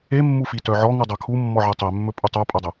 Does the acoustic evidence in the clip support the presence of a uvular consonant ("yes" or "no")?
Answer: no